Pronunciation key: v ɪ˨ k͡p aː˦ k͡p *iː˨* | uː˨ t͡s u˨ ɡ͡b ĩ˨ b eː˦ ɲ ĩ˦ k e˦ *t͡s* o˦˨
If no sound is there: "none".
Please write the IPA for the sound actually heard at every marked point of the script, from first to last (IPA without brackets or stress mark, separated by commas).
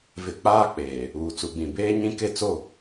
eː˨, t͡s